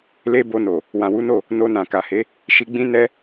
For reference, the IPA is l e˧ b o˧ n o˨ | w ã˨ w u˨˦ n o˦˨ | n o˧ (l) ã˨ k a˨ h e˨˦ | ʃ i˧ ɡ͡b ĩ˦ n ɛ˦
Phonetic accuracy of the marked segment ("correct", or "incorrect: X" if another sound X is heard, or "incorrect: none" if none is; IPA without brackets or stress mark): incorrect: n